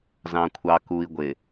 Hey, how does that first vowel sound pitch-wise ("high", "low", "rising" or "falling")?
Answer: low